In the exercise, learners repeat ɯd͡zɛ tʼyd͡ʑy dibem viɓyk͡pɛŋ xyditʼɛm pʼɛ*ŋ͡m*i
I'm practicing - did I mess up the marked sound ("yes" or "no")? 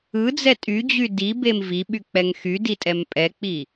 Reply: yes